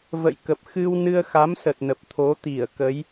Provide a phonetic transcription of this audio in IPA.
və̰˧˨jkə˨˩p̚ xɨ˧wnɨ˧ə̯xa˨˦msə˨˩t̚ nə˨˩p̚t̪ʰo˨˦ t̪i˧˩ə̯ kə˨˦j

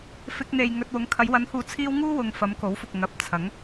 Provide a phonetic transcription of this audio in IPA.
fɪ˧k̚n̪e˨j ŋɵ˧t̚ wʊ˨˧ŋkʰɐ˨˧j wɐ˨˧nhuː˨t͡sʰiː˧w ŋuː˥wʊ˨ŋ fɐ˨˧mko˨˥wfʊ˨k̚ ŋɐ˨˥p̚t͡sʰɐ˨˥ŋ

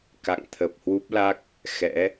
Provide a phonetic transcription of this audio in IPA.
ka̰˧˨ŋt̪ʰə˨˩p̚hwu˦˥p̚la˦˥k̚ | xɛ̰˧˥

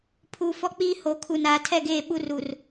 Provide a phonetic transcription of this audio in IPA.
pʰuː˨fɔ˦k͡piː˦ ho˨˦kʰu˨n aː˨tʰɛ˦˨ɡeː˦˨ ɓu˦ru˨r

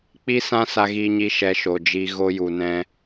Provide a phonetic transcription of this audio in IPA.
k͡pi˦ sã˦sa˧ɣiː˧ɲi˧ ʃɛ˧ʃo˨d͡ʒi˧ ɣo˧ju˨nɛ̃˧

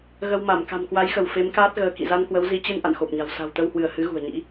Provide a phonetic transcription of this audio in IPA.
ɣə˧w ma˧˩m ka̤˨˩mkwa˨˦jxə˧˩w fe˨˦mkaː˦˥t̚ ɣəː˨˦kḭ˧˨ za˧nkwə˨˦w zi˨˦t͡ɕɨ˧n ʔa̰˧˨nxo˨˩p̚ɲa̤˨˩w sa̤˨˩wt̪ə˧whwɨ˧˩ə̯hɨ˨˦ ɣṳ˨˩ə̯ɲḭ˧˥

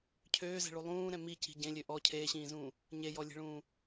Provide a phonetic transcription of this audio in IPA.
cʰøːzɛ̤ɭu lˠũːɾɛ̃ mici̤ ɟẽlʲø ʔɔ cʰeːɕĩːzũː | ɲejɔlʲe̤ɭũː

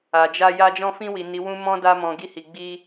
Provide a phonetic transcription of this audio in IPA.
a˨d͡ʒa˧ ja˧d͡ʒɔ̃˧fĩ˧wi˨ ni˨˦wũ˦mɔ̃˦ da˧mɔ̃˨ ɡi˧hi˨ɡ͡bi˧

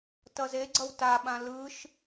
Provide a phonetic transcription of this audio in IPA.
tʌzeɡ͡ǀʌw taɓã lɯʃ

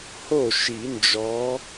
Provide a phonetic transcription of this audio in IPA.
ho˥˩ʃi˨˩˦nd͡ʒɔ˨˦

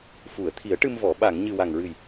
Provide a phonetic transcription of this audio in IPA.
fu˨˩˨ə̯ t̪ʰi˨˩˦ə̯ʈɨ˧mvɔ˨˩˨ ɓa˨˩˨ŋɲɨ˨˩ wa˨˩ŋɹɨ˨˩j

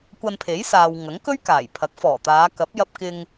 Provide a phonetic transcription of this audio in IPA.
kʷɐ˧npʰe˨˥jsaː˨w ŋɐ˨˥ŋkɵ˥ɥ kaː˨˩jpʰɐ˨˥k̚fɔː˨˩t̪aː˨˧ kɐ˨˥p̚jɐ˧p̚kɪ˧ŋ

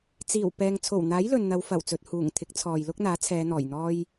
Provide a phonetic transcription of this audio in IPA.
t͡siː˨˩wpɛː˨ŋ t͡sʰo˨˩wn̪aː˨˥j lɵ˨nn̪ɐ˨˧wfɐ˨˩wt͡sɵ˨t̚ huː˨˩ŋ t̪ʰɪ˨˥k̚t͡sʰɔː˨jlʊ˥k̚n̪aː˨˥ t͡sʰɛː˨˧n̪ɔː˨˩jn̪ɔː˥j

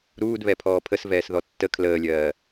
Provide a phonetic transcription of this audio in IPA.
ɾuːdβɛ pʰɔːpʰəsvɛːs ðɔtːə kʰləːlʲɜː

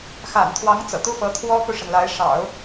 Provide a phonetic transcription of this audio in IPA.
xa̰˨˩nt̪ʰwɑ˧˥ŋ t͡sɤ̰˨˩t̪u˥fɤ˧˥ t̪ʰwɔ˥ku˨ʂə˩nla˧˥ɪ̯ ʂɑ̰˨˩˦ʊ̯

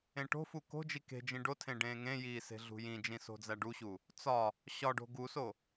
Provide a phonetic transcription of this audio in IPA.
ẽʈo̤fu ko̤d͡ʒi ke̤d͡ʒĩ ɖotʰẽ ɖẽːŋẽjiː se̤ɮṳjĩd͡ʒĩ so̤d͡zæɖuɕu | t͡sɒ | ɕɒɖo̤ ɡuso

